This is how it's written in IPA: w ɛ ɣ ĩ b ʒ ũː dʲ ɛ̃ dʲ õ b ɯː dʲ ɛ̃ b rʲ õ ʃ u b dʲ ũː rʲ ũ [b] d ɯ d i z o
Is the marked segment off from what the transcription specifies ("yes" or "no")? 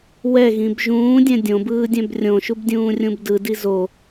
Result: no